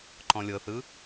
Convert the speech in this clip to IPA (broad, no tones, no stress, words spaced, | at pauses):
ǃɔ̃lʲɤθɯ